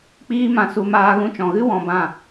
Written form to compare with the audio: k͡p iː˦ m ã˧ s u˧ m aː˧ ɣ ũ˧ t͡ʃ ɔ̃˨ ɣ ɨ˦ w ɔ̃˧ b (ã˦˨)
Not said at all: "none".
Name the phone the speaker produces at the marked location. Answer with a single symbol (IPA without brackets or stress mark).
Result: ã˦˨